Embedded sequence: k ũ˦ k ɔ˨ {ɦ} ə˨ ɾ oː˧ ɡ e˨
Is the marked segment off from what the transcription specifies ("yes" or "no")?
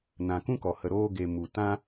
yes